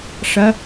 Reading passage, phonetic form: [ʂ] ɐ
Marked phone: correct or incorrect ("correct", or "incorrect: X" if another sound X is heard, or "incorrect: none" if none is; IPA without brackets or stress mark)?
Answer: correct